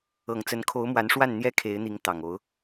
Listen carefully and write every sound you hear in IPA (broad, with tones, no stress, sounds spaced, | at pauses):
ɤ˨˩ ŋ t͡s ə˧˥ n kʰ o˧˥ ʊ̯ m w a˧˥ n ʂ w a˥˩ n n̪ j ɛ˥ kʰ e˧˥ ɪ̯ n̪ i˧˥ ŋ t̪ ɑ˨˩ ŋ o˧˥ ʊ̯